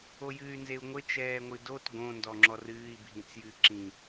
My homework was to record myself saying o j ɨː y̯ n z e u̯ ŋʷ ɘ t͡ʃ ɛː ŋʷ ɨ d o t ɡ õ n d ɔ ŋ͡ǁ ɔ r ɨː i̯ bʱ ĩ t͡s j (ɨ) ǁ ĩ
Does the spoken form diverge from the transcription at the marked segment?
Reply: no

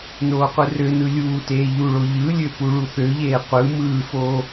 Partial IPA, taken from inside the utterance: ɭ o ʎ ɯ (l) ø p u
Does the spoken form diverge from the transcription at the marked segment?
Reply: yes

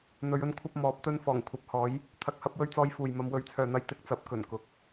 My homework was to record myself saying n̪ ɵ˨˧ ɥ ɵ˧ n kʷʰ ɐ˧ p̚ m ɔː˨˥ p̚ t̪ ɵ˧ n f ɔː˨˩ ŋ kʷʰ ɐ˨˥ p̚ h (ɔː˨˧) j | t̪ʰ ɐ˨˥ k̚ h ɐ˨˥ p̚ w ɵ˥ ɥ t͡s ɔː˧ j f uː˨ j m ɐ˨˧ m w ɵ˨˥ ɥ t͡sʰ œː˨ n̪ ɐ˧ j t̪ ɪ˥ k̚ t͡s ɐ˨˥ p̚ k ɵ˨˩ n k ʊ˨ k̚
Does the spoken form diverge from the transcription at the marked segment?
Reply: yes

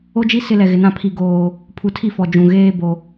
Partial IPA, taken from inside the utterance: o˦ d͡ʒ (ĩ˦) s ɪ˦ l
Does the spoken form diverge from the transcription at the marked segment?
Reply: yes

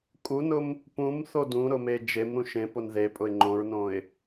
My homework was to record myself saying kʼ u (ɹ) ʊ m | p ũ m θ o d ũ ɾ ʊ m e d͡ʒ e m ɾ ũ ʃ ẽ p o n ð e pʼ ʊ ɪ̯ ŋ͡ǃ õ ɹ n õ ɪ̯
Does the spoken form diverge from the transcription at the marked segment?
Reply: yes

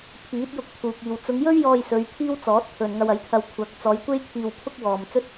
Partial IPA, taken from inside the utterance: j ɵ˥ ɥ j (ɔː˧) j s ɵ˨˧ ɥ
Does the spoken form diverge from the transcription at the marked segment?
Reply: no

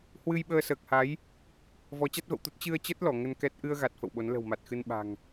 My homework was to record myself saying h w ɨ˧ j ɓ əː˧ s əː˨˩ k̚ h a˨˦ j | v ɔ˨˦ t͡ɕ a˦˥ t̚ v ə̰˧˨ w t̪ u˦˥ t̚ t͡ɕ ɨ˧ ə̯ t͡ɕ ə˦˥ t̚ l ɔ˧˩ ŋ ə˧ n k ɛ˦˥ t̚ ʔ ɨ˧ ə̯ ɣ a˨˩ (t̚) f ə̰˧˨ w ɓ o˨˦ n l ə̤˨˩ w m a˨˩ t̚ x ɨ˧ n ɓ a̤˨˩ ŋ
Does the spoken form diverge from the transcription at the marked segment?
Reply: no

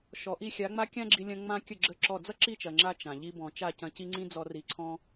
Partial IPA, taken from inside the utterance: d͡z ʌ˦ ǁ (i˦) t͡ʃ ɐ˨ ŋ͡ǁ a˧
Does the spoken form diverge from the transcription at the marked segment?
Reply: yes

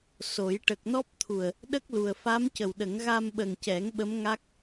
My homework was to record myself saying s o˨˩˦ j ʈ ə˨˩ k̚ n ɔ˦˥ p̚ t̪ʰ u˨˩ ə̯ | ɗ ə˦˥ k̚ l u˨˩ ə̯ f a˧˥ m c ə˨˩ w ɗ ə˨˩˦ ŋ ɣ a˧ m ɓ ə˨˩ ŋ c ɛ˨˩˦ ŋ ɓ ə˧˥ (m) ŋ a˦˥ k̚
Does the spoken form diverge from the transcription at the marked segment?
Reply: no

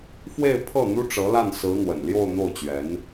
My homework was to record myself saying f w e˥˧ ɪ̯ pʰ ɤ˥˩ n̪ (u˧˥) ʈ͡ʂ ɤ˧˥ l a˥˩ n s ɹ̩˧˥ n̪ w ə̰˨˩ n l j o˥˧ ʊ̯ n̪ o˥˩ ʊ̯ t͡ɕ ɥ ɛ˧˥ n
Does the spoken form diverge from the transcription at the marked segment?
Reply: yes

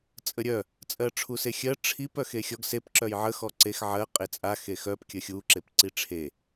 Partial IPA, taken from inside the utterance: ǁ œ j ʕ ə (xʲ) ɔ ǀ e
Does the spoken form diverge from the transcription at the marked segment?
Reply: yes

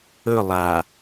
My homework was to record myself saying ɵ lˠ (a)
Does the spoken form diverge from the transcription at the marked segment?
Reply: no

